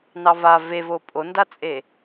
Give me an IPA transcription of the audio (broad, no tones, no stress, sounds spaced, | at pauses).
n ɑ v a v e v o pʼ o n d a t͡sʼ e